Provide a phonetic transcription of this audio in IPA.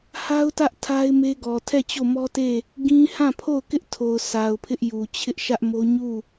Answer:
h a˦ ʊ̯ t ä˦ ʔ tʰ a˦ ɪ̯ m e˦ ɡ ɔ˨ tʰ ɛ˦˨ t͡ɕ o˦˨ m ɔ˦ t e˦˨ | ɡ ĩ˦ h ã˦˨ pʰ o˦˨ ʊ̯ k ɪ˦ ʔ tʰ o˨ ʊ̯ s a˨ ʊ̯ pʰ ɪ˦ ʔ j u˨ t͡ɕʰ ɪ˦ ʔ ʃ ä˦ ʔ m o˦ ɲ u˦˨

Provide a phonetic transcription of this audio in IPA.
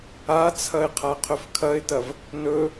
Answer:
a t͡sʰ ɐ ɪ̯ qʰ a qʰ ɵ f kʰ ɐ ɪ̯ t ɐ v | n ɵ

